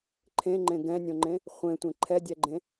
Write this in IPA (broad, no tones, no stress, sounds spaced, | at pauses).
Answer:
ǃʰ ẽ ŋ͡ǃ ẽ ɡ ɛ̃ nʲ õ ŋ͡ǃ ẽ | χʷ ẽ tʷ ẽ ǃʰ ɛ dʲ ɛ ɡ͡ǃ ẽ